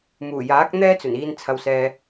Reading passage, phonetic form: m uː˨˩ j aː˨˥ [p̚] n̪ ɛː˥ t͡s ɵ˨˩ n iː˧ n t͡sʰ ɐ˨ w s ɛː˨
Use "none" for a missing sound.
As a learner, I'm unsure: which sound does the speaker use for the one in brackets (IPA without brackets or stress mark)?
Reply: k̚